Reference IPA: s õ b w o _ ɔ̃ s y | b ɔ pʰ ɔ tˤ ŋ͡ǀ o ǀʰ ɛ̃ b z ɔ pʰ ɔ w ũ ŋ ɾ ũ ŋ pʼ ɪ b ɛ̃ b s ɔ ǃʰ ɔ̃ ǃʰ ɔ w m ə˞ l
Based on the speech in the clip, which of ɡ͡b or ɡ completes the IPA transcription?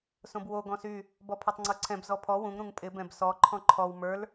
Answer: ɡ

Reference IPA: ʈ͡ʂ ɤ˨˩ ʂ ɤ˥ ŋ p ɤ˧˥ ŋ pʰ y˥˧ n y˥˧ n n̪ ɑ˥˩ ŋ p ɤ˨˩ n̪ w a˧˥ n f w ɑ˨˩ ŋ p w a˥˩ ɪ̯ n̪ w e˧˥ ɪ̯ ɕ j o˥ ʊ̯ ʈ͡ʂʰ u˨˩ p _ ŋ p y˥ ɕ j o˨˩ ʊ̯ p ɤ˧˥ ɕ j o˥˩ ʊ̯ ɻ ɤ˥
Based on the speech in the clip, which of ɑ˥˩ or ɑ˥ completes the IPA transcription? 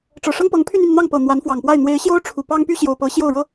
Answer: ɑ˥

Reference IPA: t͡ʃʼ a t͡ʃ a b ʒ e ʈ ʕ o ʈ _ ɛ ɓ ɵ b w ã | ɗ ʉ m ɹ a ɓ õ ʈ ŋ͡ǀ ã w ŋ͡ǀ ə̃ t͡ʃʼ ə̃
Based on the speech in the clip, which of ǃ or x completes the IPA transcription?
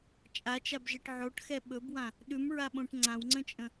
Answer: x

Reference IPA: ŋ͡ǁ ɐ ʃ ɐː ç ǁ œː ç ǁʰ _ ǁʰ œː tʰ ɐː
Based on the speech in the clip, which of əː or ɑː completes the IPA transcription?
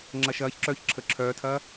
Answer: əː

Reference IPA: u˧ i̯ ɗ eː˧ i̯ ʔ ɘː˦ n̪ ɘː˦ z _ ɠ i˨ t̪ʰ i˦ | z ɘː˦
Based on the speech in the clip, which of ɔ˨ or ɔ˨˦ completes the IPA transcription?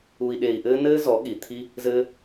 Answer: ɔ˨˦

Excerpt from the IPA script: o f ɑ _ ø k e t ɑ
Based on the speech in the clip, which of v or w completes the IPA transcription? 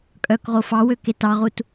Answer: w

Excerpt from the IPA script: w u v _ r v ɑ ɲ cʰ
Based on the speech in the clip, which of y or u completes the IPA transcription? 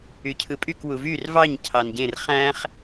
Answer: y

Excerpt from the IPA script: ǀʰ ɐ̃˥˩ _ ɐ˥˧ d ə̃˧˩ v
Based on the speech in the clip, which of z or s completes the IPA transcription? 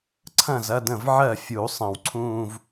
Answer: z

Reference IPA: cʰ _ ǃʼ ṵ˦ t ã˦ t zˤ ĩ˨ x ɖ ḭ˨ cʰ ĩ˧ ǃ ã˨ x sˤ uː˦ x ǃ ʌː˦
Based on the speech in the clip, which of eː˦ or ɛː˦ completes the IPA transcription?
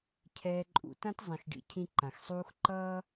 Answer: ɛː˦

